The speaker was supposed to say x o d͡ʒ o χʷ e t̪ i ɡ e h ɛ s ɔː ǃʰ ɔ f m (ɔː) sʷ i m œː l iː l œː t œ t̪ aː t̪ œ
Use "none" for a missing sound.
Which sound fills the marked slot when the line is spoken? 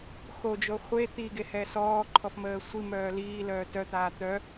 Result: əː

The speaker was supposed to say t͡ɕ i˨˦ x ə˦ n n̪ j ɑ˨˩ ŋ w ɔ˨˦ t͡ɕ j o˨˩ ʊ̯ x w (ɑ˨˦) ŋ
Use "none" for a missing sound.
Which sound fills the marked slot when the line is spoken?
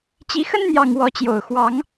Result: ɑ˨˦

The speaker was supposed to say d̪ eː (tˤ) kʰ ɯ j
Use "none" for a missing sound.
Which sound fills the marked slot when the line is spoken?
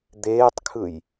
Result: tˤ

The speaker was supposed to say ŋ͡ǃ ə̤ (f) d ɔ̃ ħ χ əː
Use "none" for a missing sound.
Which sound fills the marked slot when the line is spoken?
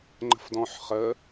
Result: f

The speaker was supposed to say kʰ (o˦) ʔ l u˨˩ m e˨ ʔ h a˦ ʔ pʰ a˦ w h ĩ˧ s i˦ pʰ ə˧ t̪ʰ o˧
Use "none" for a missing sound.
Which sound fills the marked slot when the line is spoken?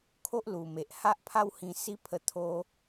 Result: o˦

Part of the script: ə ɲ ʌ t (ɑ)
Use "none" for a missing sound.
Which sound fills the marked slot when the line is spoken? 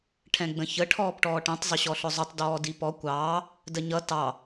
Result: ɑ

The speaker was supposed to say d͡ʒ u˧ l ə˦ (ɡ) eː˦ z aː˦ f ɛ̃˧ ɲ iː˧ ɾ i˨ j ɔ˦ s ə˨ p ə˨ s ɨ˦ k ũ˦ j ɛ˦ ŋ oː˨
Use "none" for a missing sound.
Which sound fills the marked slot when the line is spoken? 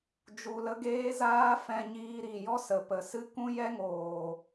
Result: ɡ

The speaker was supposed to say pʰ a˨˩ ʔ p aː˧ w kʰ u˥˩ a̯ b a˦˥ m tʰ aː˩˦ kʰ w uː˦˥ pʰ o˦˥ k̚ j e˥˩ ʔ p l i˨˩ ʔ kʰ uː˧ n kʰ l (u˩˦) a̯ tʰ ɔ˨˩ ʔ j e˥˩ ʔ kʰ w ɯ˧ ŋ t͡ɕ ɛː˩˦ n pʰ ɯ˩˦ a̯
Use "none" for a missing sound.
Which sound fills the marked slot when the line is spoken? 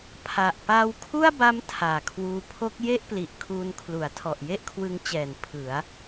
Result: u˩˦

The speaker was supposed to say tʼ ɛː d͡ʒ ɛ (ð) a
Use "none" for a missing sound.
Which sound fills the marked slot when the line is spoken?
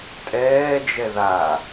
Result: ð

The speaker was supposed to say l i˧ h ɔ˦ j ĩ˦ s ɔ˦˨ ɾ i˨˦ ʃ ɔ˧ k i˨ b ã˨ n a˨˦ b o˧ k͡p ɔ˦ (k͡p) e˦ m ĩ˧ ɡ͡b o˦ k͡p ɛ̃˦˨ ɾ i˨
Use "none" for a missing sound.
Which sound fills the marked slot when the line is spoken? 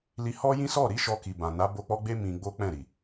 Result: ɡ͡b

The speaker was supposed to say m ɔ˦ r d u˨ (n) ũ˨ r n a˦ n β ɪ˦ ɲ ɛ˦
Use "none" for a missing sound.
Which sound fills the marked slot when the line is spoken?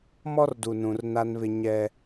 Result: n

